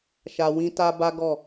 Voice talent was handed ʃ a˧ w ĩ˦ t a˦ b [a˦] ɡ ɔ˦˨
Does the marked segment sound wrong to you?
no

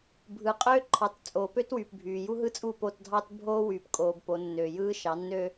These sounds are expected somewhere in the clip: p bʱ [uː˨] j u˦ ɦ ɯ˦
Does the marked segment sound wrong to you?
yes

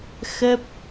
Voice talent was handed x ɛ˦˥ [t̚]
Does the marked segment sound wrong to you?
yes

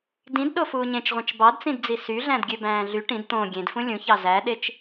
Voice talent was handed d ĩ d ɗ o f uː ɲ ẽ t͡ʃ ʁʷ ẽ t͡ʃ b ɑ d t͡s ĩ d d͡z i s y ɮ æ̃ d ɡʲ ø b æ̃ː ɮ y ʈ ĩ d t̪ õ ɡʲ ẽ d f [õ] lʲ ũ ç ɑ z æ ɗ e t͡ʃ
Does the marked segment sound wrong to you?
yes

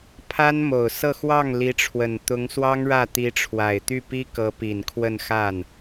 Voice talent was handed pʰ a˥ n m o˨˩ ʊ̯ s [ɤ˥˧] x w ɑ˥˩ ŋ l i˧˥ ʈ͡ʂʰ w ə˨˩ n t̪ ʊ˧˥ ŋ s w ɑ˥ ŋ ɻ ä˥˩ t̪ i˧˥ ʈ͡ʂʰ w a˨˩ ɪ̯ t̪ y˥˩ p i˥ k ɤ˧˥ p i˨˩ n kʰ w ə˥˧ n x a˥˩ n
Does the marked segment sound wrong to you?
no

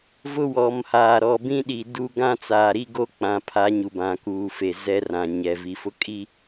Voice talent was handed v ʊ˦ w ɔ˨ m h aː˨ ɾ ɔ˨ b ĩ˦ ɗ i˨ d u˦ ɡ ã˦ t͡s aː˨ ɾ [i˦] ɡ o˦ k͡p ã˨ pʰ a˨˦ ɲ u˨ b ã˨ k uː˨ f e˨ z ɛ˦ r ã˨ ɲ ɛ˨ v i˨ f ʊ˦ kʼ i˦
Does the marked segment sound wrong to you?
no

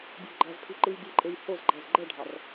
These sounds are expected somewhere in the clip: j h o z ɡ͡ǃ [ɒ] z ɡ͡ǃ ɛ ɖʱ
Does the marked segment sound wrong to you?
yes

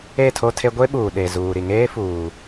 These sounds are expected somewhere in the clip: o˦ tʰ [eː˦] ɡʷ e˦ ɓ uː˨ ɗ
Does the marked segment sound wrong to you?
yes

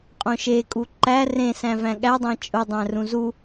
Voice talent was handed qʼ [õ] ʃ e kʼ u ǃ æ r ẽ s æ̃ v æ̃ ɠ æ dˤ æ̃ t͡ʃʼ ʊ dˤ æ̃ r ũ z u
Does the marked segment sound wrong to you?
no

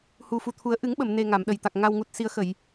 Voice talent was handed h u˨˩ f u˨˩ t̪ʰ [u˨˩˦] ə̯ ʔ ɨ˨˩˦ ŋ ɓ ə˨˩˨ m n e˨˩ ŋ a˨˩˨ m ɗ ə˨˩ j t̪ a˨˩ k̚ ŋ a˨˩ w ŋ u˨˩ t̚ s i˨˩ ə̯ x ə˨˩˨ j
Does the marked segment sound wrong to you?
no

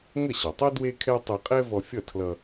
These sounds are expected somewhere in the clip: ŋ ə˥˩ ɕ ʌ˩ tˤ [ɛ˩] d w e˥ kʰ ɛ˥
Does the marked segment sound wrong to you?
yes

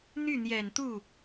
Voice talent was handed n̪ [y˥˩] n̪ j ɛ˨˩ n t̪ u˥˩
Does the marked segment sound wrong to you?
no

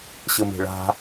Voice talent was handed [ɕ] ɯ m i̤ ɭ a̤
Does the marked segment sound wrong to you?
no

